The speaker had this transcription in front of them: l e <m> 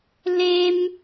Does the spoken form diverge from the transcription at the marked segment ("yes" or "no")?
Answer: no